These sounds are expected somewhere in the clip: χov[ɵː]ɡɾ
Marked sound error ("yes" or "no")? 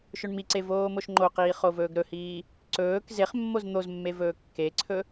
no